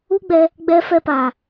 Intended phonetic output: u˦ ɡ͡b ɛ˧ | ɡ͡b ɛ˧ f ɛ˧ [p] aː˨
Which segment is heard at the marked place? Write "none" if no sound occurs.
p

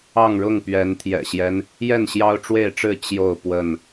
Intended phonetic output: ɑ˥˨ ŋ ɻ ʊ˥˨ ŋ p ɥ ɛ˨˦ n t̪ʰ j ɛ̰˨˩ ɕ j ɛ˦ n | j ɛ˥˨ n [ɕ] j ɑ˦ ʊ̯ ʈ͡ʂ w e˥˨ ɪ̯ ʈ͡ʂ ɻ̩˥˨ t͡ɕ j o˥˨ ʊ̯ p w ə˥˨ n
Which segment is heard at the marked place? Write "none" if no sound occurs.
ɕ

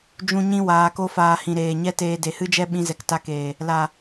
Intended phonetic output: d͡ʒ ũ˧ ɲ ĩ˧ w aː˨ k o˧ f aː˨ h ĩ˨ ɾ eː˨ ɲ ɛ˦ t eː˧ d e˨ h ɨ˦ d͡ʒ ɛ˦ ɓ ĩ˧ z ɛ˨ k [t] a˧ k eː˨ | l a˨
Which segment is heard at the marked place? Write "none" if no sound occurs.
t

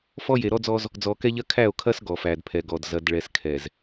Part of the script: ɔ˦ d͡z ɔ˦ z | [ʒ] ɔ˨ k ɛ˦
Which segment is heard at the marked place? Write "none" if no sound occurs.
d͡z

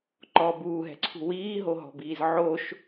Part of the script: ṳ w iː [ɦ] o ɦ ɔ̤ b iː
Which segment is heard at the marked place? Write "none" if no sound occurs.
ɦ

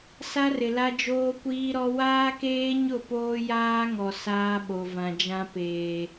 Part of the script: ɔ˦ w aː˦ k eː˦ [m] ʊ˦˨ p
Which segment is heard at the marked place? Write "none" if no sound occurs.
ɲ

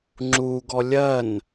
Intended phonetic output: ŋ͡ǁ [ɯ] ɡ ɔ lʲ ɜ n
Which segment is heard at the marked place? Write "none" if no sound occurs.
u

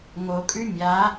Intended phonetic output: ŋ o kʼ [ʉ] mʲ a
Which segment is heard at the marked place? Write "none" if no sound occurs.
ʉ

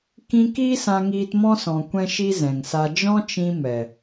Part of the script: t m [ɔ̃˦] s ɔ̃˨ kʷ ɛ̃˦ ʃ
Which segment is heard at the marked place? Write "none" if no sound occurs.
ɔ̃˦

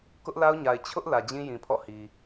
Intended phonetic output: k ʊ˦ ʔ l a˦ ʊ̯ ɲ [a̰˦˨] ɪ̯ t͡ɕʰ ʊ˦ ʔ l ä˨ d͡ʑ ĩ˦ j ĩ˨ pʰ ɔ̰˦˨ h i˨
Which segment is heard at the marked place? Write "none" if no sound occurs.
a˨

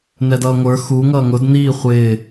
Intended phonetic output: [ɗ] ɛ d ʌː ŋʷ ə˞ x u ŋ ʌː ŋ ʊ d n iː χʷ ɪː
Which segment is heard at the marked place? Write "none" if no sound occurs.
n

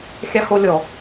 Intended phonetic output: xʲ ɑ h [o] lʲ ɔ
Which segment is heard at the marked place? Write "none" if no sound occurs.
o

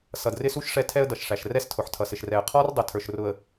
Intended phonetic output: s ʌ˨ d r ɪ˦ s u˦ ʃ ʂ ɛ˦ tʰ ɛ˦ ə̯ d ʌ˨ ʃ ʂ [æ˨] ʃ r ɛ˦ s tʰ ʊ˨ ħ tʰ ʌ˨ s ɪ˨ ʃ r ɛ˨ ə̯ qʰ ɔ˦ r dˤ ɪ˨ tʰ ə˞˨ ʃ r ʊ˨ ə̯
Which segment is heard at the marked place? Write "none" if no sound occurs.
æ˨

